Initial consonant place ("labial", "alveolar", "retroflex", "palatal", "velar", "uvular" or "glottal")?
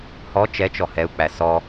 glottal